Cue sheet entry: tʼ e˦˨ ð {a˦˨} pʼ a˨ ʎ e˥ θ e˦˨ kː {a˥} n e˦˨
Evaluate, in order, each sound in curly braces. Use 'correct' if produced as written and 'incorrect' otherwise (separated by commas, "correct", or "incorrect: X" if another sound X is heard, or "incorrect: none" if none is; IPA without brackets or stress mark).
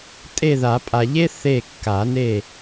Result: incorrect: a˨˩˦, incorrect: a˨˩˦